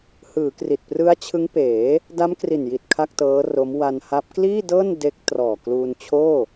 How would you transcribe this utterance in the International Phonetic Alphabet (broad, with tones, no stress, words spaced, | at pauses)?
hɯː˩˦kri˨˩t̚prɯ˦˥a̯ t͡ɕʰɯ˦˥ŋpeː˩˦ | da˦˥mkri˨˩nji˨˩t̚ kʰa˥˩k̚tɤː˦˥ro˦˥m wa˧nha˦˥p̚ kliː˥˩dɤː˥˩n de˦˥k̚trɔː˨˩ kluː˧nt͡ɕʰoː˥˩